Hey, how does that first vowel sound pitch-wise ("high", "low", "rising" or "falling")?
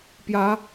rising